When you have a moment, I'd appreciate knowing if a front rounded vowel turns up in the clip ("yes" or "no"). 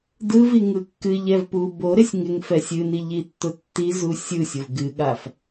no